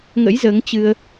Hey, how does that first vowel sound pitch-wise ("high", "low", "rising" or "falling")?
rising